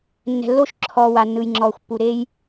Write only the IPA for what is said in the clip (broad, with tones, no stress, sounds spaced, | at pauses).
nː ɛ̤˨ lː o˦˨ ʃ ǁʰ ɔː˨ w a˨ nː ɯ˨ j ŋ͡ǁ ɔː˨ xʷ pː u˨ ɾ eː˦ j